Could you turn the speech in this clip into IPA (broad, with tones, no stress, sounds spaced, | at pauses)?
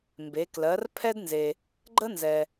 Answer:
m b e˩˧ k l ɜ˩˧ r pʰ ɛ˥ d n z e˩ | ɡ͡ǃ ə˥ n z ɛ˩